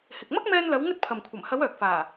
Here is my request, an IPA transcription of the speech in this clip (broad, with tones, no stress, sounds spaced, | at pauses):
h ɪ˨ k̚ m ɐ˥ k̚ m ɛː˧ n l ɐ˨˧ w ŋ ɵ˥ t̚ pʰ ɐ˨ m kʷʰ ɐ˨˩ m h ɐ˨˧ w œː˨ k̚ f aː˨˩